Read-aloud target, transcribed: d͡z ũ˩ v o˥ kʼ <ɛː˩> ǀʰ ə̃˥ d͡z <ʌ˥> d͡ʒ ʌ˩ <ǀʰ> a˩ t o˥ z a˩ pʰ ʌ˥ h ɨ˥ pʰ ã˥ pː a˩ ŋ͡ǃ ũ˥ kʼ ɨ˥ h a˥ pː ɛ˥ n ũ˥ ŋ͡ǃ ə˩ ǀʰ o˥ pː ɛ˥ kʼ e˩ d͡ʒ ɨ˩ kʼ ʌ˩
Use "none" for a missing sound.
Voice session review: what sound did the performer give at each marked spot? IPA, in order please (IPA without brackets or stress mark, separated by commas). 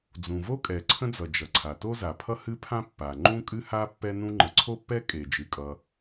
ɛ˩, ʌ˩, ǀʰ